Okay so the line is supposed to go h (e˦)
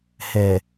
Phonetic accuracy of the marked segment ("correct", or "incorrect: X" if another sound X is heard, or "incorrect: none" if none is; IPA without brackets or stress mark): incorrect: e˨